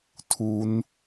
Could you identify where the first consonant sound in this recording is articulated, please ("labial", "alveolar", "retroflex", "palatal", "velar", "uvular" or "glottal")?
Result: alveolar